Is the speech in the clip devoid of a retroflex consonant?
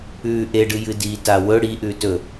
no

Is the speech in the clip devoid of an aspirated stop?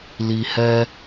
yes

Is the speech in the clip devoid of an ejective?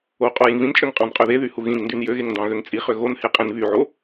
no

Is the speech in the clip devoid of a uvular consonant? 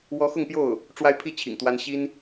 yes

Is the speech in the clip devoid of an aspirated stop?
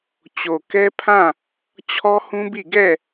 no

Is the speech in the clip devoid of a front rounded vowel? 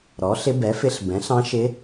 yes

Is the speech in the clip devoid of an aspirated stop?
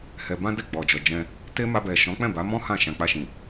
yes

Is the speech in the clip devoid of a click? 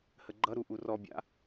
no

